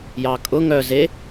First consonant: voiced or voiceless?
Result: voiced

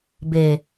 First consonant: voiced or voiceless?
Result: voiced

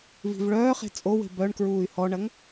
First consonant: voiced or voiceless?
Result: voiced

